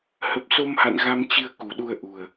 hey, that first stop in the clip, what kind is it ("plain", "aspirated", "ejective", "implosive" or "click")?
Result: plain